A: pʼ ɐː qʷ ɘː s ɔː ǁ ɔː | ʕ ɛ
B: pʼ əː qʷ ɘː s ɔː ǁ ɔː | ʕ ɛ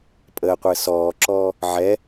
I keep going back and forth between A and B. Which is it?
B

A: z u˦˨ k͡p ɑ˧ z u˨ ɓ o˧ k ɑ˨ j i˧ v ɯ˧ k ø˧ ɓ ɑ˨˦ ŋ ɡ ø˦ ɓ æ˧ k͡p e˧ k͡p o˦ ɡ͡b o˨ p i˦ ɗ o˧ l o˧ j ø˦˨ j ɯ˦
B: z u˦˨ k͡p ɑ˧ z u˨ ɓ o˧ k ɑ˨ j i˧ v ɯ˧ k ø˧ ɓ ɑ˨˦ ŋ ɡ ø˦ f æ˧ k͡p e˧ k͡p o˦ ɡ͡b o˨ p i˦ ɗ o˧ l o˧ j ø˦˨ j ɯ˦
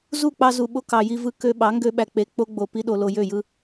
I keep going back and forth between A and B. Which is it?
A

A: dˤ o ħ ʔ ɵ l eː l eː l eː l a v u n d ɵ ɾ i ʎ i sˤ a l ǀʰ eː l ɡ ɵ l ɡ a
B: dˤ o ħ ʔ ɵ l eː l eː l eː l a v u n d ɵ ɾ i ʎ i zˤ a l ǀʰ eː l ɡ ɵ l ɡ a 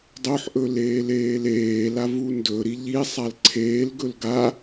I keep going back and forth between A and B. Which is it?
A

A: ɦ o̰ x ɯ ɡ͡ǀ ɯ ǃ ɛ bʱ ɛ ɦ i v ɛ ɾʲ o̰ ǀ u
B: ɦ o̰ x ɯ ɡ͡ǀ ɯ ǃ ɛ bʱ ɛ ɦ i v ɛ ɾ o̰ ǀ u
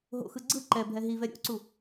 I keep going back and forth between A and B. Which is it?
A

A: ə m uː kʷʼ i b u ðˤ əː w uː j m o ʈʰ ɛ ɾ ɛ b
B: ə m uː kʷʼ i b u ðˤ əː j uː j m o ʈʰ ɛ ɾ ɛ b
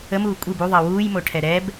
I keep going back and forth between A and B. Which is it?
A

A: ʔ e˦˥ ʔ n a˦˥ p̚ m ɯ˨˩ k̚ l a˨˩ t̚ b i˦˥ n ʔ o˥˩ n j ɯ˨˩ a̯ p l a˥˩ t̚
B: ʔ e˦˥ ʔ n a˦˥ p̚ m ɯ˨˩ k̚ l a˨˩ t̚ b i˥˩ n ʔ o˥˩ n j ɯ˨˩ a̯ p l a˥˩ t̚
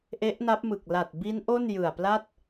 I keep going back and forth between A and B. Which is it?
A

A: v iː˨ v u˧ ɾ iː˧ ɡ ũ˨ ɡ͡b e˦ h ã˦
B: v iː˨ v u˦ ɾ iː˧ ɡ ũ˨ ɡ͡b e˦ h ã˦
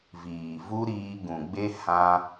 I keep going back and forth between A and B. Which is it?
B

